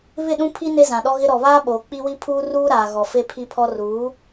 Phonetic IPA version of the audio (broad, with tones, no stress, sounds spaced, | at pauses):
β ɪ˦˨ ɗ ũ˦ pʰ i˦ n e˦ z ã˨ ɗ ɔ˦ ɣ ɪ˦ ɾ ɔ˨ β aː˦ ɓ oː˨ k͡p i˦ w i˦ pʰ uː˦ r uː˦ ɾ aː˨ ɣ ɔ˨ f e˦ pʰ i˦ pʰ ɔ˦ r uː˨˦